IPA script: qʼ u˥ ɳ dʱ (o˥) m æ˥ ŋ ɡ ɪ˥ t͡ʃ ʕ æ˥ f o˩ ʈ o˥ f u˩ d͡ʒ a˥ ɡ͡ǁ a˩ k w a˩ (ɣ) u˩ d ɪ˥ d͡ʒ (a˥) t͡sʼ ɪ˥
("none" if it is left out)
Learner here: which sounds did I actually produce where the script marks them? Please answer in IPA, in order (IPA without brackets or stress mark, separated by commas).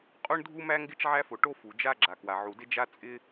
u˥, ʕ, a˥